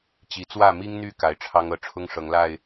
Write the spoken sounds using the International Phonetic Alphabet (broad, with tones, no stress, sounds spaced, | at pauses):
t͡ɕ i˨˦ t͡s w ä˥˨ m i˦ ŋ n̪ y˥˨ k a˨˩ ɪ̯ ʈ͡ʂʰ ɑ˦ ŋ ɤ˥˨ ʈ͡ʂʰ ʊ˦ ŋ ʂ ɤ˨˦ ŋ l a˥˨ ɪ̯